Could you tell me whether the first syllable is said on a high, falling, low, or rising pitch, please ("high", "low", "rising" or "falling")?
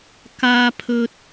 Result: high